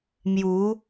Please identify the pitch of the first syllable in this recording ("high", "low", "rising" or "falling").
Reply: rising